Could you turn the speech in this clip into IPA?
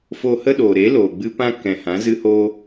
f o˧ h ə˦ ɗ oː˨ ɾ e˨˦ l oː˨ ɡ͡b ɨ˦ p ã˦ k ɛ̃˨ h ã˨˦ z ɨ˦ h oː˦

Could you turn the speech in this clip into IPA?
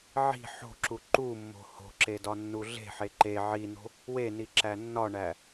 ʕ i̤ ħ o̤ ǁ u ǃ u mː o̤ h o̤ ǁ e d ɒ nː u ɮ e̤ ħ e ǃ e ʕ i n o̤ | w e n i ǁ æ nː ɒ ɳ æ

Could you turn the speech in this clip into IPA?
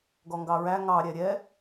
ɡ ɔ ŋ ɡ ɑ ɹ æ ŋ ɑ ɾʲ ɛ ɾʲ ɛ

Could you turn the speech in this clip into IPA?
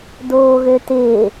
d oː ɣ ø t ɪː

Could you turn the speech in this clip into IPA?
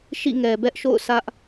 ʃ ḭ˦˨ ŋ ɛ˨ b ɛ˦ ʔ ʃ o̰˦˨ ʊ̯ s ä˦ ʔ

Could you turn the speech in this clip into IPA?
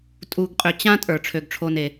tʼ u˨ ɡ qʼ ø˨ t͡ɕ ã˥ tʼ ə˞˩ ʈ͡ʂʰ ø˩ ɡ ʈ͡ʂʰ o˨ n e˩

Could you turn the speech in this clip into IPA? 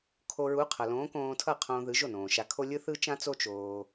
kʰ o˧ ɹ u˨˥ qʰ ʌ˩ l õː˨˥ k õː˧ tʰ ʌ˥˩ qʰ õː˧ ð ɯ˨˥ ʒ o˥˩ n õː˩ ʃ a˧ kʰ o˥ lʲ ɯ˥ θ ɯ˥ t͡ʃ ã˥ t͡s o˥ t͡ʃ oː˧

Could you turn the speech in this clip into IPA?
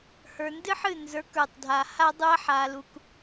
h ə˞˨ n d ɨ˦ ħ ɨ˦˨ n z ə˞˨˦ k ə˞˨ tˤ dʱ a˨ h a˦ dˤ u˦ ɐ̯ ħ a˧ l u˧ k

